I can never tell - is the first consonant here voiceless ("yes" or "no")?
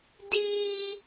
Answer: no